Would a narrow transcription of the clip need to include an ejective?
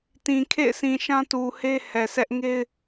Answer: no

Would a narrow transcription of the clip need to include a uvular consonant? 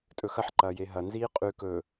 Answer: yes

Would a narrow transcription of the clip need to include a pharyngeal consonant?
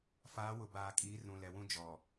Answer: no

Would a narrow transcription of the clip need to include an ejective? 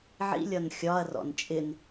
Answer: yes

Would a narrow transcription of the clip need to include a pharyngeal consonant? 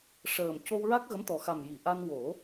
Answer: no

